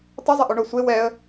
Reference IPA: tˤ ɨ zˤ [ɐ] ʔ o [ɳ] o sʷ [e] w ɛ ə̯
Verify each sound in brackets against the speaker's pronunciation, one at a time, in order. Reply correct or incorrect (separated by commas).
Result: correct, correct, correct